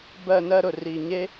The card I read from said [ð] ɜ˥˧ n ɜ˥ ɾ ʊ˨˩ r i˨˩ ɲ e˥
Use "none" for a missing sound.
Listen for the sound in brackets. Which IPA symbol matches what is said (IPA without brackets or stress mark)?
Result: b